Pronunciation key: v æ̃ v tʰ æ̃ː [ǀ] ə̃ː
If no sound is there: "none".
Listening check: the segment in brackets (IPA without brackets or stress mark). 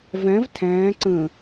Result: ǀ